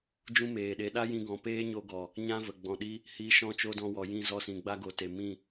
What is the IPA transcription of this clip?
d͡ʒũ˦meː˨ɗe˨˦ ɗa˦jĩ˧ ɡɔ̃˨ peː˦ɲo˧ɡɔ˨ | ɲã˦və˨ ɡ͡bɔ̃˨ɗi˦ | hi˧ʃɔ̃˦ t͡ʃo˦dɔ̃˧wɔ˨jĩ˧ zɔ˧sĩ˨ɡ͡ba˦ɡo˨ te˨mĩ˦˨

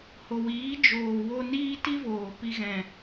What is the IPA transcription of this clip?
ho˨wiː˨˦ d͡ʒoː˨ wo˧ niː˦ ti˦voː˨pi˧ ɣɛ̃˨

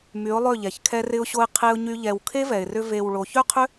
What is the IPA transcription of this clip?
my˨˦ʊ̯lˠø˦˨ʎɛ˨ç kʰɛ˧rɪ˧ʊ̯ɕo˧ɪ̯ qʰe˧ʊ̯ɲy˧ ʎɛ˨w kʰe˦vɛ˨ɪ̯rʏ˧ ve˨w ɭo˨çø˦qʰʏ˦

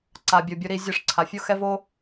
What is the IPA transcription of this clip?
ǀa˨ bʲo˨bʲo˧ ɾi˧zʲɤ˦˨ʂǀʰa˨ fʲo˦xɛ˦voː˦

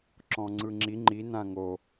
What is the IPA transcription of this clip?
ǁɔ̃ŋ͡ǀɯŋ͡ǁi ŋ͡ǃinã ŋo

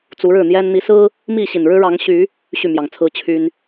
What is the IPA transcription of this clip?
t͡su˨˦ɻɻ̩˥˨n̪jɛ˦n n̪i˨˦sɹ̩˦ | mi˥˨ɕi˨˩nɻɻ̩˦ ɻɑ˨˦ŋɕy˨˦ | ɕy˥˨mjɑ˨˩ŋt͡sʰɹ̩˦ t͡ɕʰy˦n

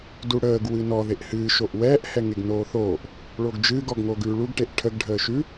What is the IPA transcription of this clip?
duɽəːɡ wɨnɔ ðeʔhɨː ʃoʔwɛːʔ hɛŋeɡnoːθoːʔ | ɭoɡd͡ʒɨːɡ ɔɡŋoɡʉːɭuɡ ʈeʔʈʰəɡ ɖʱəːʃʉ

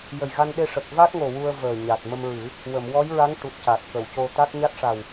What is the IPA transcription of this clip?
jə˨˩jɣa˧n ɗe˧ʂə˨˩k̚ va˦˥t̚ŋo˨˩ wu˧ə̯vəː˨˩ɲa˨˩t̚ mə˧mɹɨ˨˩˦ | wə˨˩˨m wɔ˧˥jɹa˧˥ŋ ʈu˨˩t̚ca˨˩t̚ kə˨˩˨wco˧ t̪a˦˥k̚ ɲa˦˥t̚ʂa˨˩w

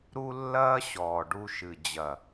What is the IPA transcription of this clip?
ɾu˦lːɐː˦ɕɔː˨ɖu˧ ʃɨ˨ d͡ʑɐ˨

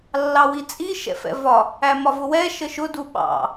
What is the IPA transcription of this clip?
lːɑwit͡sʼi ʃɛ̰fɛ̰vɒ | æmɒvʊwɛ ʃəʃʊ duɓɑ̰

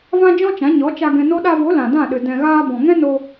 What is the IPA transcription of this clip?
vã˦d͡ʒɔ̃˦t͡ʃã˨˦ ɲɔ˨˦t͡ʃa˧ ɡɛ̃˧no˦ ɗa˧vo˨˦ lã˨dã˦˨ɗɨ˨ dɛ̃˨ɣaː˧ bɔ̃˨ŋɛ̃˦no˧

